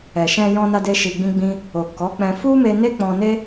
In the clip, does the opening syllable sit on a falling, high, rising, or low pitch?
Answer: low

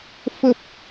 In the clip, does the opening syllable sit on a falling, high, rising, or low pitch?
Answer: low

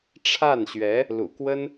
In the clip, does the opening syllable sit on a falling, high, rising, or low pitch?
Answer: falling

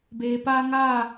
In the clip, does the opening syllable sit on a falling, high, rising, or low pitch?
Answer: low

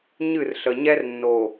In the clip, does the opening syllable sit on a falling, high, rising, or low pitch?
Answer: falling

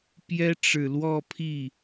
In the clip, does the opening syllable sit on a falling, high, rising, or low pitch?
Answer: high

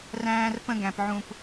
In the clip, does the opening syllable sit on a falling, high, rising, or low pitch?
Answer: high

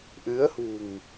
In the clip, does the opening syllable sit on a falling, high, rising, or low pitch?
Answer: rising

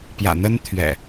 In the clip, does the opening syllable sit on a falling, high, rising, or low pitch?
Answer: low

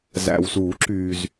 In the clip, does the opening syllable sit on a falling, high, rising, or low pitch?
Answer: low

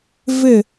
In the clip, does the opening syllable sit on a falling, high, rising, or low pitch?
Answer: falling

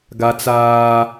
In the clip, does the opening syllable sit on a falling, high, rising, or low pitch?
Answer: high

